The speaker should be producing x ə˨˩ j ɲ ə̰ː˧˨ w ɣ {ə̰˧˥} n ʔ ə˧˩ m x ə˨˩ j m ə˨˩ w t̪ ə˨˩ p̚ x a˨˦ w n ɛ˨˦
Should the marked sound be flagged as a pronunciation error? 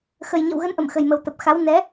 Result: yes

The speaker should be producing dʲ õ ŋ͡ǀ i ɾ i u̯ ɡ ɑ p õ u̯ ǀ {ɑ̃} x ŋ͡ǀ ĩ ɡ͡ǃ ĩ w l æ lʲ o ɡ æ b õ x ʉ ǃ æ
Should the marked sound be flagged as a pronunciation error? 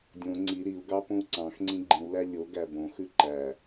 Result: no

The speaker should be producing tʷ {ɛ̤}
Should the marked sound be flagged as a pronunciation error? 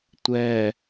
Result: yes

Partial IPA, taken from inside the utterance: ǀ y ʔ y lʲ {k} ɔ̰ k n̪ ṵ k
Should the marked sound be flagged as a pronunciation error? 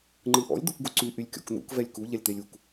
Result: yes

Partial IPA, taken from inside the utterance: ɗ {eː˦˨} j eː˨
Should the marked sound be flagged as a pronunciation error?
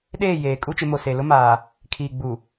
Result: no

